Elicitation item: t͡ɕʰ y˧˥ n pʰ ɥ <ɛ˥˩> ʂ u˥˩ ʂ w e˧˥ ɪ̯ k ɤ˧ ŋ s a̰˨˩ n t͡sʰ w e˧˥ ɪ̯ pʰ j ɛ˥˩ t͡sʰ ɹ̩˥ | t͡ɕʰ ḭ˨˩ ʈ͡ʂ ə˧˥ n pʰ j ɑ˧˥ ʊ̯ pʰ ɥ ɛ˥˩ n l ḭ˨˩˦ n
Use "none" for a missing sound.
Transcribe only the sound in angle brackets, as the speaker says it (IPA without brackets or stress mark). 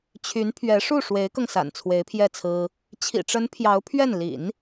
ɛ˧˥